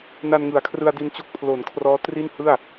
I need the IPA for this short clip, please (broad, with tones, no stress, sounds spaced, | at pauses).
n a˧ n ŋ ɯ˩˦ a̯ kʰ r ɯ˧ a̯ d i˧ n t͡ɕ o˦˥ k̚ pʰ l o˩˦ n kʰ r ɔː˦˥ t r i˥˩ n h ɯ˥˩ a̯